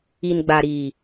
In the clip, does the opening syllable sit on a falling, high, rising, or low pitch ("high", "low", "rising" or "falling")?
low